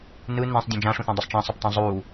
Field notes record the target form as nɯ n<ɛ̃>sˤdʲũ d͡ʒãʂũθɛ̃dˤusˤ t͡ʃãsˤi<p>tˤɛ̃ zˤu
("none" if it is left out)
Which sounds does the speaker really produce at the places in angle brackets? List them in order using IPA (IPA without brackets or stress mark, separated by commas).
ɛ̃, p